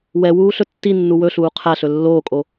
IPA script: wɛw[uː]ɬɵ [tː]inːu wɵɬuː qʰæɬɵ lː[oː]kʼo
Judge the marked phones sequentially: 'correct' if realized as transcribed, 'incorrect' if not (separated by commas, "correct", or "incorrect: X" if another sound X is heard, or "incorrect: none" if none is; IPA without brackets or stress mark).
correct, correct, correct